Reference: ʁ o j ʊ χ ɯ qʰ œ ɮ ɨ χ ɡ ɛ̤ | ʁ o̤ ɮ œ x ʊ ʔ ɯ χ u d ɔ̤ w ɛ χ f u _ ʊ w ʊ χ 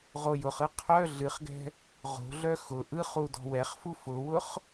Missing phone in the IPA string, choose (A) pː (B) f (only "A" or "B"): B